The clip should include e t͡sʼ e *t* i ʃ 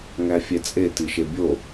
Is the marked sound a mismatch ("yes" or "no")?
no